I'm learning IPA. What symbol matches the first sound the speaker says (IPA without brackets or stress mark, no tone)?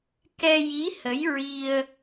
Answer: k